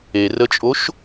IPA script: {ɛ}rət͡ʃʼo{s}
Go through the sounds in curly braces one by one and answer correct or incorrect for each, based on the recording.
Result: incorrect: e, incorrect: ʃ

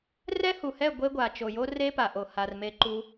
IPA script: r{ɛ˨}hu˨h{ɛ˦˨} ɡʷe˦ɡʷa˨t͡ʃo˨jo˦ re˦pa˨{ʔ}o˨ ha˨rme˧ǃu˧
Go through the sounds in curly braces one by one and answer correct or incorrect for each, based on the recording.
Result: incorrect: ɛ˦, correct, correct

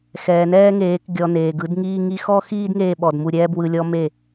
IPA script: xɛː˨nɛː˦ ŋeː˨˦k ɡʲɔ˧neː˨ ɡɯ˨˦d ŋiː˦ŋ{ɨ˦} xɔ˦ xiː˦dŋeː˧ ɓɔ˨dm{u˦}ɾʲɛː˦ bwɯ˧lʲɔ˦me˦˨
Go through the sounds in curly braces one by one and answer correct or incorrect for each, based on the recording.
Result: incorrect: i˦, incorrect: u˧

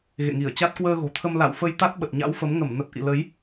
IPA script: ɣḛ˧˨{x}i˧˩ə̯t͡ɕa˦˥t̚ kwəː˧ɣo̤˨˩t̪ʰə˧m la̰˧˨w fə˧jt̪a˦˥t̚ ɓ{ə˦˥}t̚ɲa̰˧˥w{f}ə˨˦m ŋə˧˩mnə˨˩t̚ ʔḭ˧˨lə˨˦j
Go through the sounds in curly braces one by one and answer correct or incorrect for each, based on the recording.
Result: incorrect: ŋ, incorrect: ə˨˩, correct

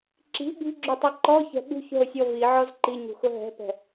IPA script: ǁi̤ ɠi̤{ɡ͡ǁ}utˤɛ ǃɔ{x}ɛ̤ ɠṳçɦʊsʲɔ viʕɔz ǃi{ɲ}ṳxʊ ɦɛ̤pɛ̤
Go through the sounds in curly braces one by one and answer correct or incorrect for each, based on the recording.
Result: correct, incorrect: ç, correct

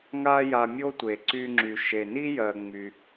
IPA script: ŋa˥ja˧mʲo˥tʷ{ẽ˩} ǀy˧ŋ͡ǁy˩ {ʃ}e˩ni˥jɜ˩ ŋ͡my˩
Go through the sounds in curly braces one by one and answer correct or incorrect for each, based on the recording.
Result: incorrect: e˩, correct

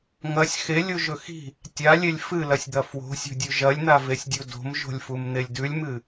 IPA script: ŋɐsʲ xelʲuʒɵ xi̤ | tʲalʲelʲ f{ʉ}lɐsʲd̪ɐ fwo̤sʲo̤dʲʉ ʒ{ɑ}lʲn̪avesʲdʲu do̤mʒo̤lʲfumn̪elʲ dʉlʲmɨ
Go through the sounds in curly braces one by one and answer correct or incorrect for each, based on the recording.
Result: incorrect: ɨ, incorrect: ɐ

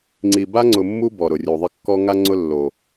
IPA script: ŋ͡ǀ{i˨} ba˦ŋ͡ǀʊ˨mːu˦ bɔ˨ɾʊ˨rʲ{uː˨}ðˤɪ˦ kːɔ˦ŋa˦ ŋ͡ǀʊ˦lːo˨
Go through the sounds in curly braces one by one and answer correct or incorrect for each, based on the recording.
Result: correct, incorrect: u˨

